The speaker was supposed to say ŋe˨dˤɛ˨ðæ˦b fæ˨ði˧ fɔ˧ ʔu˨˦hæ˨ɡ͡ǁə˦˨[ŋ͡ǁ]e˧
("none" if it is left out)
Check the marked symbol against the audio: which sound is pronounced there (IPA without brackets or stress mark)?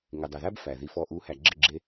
ɡ͡ǁ